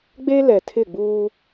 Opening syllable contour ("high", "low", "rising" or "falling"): high